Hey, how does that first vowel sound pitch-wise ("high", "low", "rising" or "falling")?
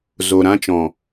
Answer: low